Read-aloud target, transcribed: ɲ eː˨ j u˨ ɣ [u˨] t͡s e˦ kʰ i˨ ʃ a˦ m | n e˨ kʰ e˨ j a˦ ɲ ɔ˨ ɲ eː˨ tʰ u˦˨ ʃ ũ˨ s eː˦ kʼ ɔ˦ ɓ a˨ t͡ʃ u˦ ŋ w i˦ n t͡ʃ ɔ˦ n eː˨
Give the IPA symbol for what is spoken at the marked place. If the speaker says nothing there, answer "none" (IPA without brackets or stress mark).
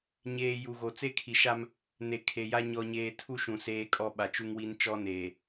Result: o˨